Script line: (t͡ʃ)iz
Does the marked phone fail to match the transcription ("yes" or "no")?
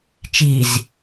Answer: no